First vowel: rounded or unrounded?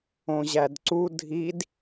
rounded